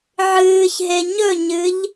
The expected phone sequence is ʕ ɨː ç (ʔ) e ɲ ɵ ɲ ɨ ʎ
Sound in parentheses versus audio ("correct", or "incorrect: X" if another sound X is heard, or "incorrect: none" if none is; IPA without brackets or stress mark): incorrect: ɦ